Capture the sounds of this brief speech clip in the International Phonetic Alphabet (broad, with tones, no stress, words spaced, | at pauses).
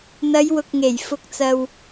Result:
n̪ɐ˨˧jwʊ˨k̚ŋe˨˩j fʊ˧k̚t͡sɐ˧w